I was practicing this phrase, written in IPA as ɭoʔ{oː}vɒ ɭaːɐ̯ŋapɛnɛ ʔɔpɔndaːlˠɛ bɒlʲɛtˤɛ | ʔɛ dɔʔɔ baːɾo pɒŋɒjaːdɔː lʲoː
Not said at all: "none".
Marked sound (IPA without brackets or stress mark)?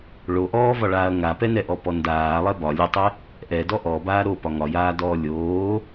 ɔː